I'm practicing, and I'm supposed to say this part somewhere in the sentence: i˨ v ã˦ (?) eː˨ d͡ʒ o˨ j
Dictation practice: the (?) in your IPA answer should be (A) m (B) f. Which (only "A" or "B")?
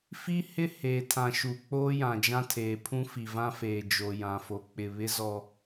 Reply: B